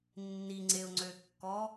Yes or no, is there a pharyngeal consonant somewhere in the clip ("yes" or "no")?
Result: no